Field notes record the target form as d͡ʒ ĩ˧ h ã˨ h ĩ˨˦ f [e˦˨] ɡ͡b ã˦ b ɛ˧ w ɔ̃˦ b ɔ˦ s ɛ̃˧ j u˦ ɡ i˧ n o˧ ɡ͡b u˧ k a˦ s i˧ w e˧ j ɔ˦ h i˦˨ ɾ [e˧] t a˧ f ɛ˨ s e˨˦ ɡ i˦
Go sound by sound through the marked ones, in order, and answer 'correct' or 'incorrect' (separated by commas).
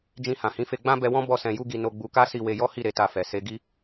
incorrect, correct